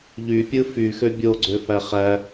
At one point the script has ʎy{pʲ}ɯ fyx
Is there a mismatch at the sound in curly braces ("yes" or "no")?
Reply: no